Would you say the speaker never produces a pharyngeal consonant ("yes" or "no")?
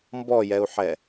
no